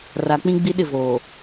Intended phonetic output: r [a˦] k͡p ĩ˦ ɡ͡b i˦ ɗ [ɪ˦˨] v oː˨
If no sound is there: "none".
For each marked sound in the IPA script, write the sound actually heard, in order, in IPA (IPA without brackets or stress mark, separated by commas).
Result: a˨, ɪ˦˨